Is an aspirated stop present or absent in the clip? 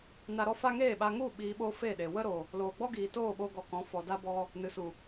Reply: absent